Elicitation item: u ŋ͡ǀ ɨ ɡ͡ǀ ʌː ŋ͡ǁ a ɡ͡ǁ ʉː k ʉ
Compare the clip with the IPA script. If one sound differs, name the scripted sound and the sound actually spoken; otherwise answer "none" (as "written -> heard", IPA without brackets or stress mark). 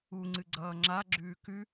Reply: none